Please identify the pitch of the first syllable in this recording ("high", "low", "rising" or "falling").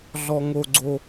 high